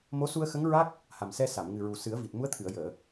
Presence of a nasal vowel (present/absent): absent